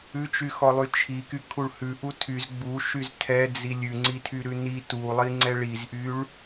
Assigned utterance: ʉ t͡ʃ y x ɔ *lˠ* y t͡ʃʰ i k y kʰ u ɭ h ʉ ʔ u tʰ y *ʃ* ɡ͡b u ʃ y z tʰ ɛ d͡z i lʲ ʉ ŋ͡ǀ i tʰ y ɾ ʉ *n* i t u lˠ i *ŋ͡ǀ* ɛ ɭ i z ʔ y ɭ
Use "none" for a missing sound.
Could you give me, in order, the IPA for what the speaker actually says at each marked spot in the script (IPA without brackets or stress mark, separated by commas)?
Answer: lˠ, z, n, ŋ͡ǀ